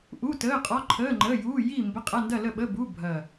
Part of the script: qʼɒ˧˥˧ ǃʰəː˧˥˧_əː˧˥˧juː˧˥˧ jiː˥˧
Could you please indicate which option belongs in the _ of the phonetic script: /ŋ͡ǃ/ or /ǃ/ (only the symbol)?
ŋ͡ǃ